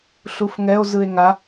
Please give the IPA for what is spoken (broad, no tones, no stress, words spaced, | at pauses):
ɬufŋɛo̯zɯe̯ ŋa